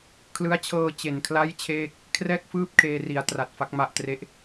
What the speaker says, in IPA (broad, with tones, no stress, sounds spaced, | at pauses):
kʰ l ɯ˦˥ a̯ t͡ɕʰ ɤː˧ t͡ɕ e˨˩ n kʰ l a˥˩ j t͡ɕʰ eː˥˩ k̚ | kʰ r ɛː˥˩ k̚ f ɯː˥˩ p̚ kʰ eː˧ r i˩˦ a̯ t r a˨˩ t̚ f a˦˥ k̚ m a˦˥ ʔ t r e˦˥ ʔ